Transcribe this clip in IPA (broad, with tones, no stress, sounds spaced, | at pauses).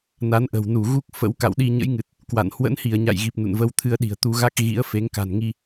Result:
n a˨˦ n ʔ ə̤˨˩ w n u˧˩ ɣ u˦˥ k̚ f ə̰˧˥ w k a̰˧˨ w ɗ i˧ ɲ ə̰˧˥ j ŋ ɨ˨˩ t̚ | k w a̰˧˨ n h w ə̰˧˥ n h i˧˩ ə̯ ɲ a̰˧˨ j ɣ i˨˩ p̚ n ṵ˧˨ n v ə˧ w t̪ʰ ɨ˧ ə̯ ɗ i̤˨˩ ə̯ t̪ u˧ ɣ a˦˥ k̚ ɣ ḭ˧˥ ə̯ f e˨˦ ŋ k a̤˨˩ n ŋ i˧